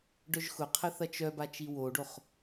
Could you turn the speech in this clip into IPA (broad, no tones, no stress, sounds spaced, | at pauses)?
ɖ œ ʒ x ʊ qʰ ə θ ɐ t͡ʃ œ b a t͡ʃ i w o ɖ o χ